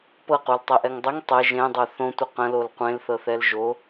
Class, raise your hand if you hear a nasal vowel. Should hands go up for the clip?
yes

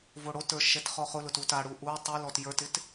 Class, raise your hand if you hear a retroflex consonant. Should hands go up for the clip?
yes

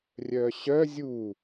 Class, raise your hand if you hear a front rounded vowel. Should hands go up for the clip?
yes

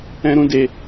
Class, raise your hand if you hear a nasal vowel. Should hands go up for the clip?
yes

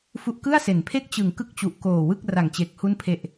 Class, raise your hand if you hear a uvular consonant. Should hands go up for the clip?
no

